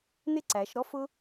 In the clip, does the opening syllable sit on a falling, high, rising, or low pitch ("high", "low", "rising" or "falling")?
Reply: falling